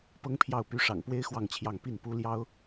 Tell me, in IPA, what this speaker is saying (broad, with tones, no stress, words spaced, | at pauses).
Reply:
pɤ˥ŋpʰjɑ˥˩ʊ̯ py˧˥ʂɑ̰˨˩ŋpwe˥ɪ̯ xwɑ˥˧ŋt͡ɕʰjɑ˥˧ŋ pi˥˩npu˥ljɑ˥ʊ̯